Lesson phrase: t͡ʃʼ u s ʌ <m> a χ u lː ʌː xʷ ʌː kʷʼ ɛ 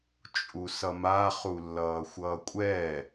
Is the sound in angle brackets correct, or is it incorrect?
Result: correct